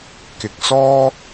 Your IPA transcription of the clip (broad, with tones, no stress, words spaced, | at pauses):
kɪ˨k̚ sɔː˥